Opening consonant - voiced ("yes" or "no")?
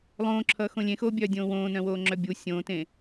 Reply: yes